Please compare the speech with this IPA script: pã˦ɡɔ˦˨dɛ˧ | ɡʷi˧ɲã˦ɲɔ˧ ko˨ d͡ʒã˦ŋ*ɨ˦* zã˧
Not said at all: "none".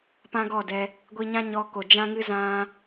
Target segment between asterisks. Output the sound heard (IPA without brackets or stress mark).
ɨ˦